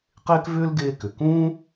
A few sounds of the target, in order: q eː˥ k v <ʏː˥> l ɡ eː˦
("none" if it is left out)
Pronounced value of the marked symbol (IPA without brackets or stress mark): ʏː˥